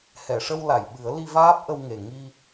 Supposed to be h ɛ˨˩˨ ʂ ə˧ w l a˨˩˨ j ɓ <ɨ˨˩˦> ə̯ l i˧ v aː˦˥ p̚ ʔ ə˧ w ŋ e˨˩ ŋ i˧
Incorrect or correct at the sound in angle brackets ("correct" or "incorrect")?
correct